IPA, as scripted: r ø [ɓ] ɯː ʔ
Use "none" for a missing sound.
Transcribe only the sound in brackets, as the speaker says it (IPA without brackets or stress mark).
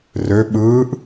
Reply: ɓ